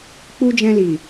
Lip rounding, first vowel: rounded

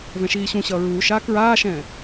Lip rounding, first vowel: unrounded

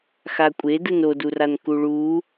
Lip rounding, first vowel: unrounded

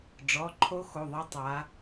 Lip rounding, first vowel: rounded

